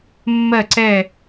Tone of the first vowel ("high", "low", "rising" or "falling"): falling